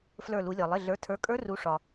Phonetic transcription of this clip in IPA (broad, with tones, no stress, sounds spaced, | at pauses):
f l ə˞˧˩ l u˩˧ lʲ ɒ˩ lˠ ɪ˩˧˩ ɮ ə˞˩˥ tʰ ə˞˩˥ kʼ ə˞˧˥ r u˩˧ ʂ ɒ˩